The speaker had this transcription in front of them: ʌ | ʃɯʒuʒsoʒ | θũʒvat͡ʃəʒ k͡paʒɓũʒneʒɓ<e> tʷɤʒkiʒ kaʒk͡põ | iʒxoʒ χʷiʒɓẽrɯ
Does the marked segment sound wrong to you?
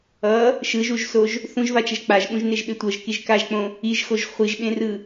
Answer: no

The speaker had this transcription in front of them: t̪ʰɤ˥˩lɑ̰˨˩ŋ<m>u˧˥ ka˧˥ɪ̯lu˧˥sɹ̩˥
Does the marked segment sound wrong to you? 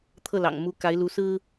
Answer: no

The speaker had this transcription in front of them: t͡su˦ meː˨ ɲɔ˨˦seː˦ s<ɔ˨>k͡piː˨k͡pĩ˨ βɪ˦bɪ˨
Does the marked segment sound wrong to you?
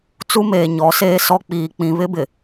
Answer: yes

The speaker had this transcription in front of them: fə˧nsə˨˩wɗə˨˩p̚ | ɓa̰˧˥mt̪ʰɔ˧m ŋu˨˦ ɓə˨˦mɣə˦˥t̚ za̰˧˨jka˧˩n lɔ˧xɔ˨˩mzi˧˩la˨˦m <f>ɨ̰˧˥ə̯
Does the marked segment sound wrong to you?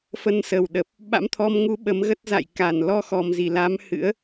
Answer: yes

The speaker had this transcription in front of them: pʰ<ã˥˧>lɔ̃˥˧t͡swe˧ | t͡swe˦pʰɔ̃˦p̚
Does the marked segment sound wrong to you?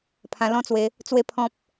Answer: yes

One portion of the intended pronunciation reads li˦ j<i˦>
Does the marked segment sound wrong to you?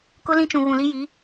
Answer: yes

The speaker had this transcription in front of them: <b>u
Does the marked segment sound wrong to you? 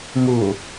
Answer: yes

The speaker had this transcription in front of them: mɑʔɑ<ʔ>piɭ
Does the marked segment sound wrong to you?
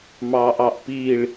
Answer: no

